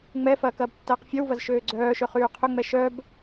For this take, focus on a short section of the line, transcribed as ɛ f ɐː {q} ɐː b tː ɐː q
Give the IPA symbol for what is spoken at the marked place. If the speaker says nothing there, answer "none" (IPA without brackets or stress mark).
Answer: k